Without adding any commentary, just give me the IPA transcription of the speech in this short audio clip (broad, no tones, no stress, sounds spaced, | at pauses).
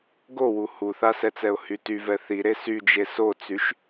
ɡ o w u h u θ a s ɛ t͡s ɛ ʊ̯ h y t y v ɛ θ i ɾ e s y d͡ʒ e s o t͡s y ʃ